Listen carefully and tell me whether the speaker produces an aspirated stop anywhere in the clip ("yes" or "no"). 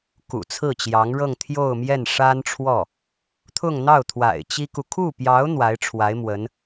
yes